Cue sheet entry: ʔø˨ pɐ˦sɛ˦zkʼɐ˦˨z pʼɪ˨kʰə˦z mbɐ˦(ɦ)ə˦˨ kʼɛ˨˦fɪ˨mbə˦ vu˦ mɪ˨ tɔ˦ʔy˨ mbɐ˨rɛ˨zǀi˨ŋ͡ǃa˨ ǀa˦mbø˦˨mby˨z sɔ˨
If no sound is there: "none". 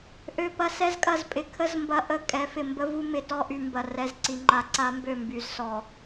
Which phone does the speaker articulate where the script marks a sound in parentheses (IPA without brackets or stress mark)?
ʔ